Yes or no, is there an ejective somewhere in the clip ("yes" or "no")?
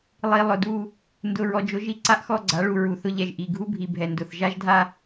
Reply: no